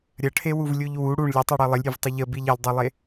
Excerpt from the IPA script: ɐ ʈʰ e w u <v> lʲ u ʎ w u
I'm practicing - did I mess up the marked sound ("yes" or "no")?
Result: no